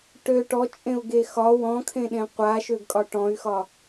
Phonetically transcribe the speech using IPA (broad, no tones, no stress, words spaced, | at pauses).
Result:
ʈø ʈɔt͡ʃʼẽu̯ɡe xɒ wɔ̃kʰẽɗẽ qʷaʃøɡkʼɒ ʈɔ̃y̯xɒ